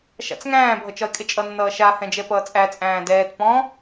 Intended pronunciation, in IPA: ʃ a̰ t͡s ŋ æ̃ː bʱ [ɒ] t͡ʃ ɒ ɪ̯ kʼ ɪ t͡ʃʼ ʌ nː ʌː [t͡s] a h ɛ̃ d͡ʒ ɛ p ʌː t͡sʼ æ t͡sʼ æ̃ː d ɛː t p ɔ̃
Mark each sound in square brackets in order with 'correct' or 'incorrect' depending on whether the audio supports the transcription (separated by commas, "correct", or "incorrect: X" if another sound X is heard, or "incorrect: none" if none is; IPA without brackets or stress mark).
incorrect: ʌ, incorrect: ʃ